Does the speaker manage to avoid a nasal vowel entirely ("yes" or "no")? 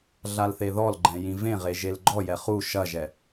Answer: no